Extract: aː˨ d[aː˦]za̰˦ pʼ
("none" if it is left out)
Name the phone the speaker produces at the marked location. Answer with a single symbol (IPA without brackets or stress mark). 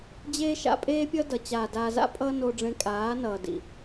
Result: aː˧